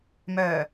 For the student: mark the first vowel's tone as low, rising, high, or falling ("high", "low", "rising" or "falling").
low